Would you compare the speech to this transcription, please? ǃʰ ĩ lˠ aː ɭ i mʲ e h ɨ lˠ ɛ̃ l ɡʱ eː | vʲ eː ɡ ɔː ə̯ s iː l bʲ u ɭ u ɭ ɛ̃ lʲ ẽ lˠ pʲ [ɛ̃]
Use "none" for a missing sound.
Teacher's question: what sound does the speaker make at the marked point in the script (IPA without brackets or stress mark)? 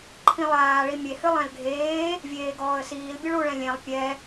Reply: ɛ